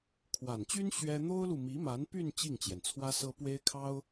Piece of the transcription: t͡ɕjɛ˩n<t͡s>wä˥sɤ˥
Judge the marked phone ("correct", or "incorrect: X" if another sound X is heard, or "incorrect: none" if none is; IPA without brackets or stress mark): incorrect: t͡sʰ